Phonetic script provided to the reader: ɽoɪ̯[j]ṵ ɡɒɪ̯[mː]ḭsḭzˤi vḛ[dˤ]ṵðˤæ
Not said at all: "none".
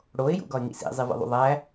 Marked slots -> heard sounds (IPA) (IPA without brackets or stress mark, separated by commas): j, ŋ, ðˤ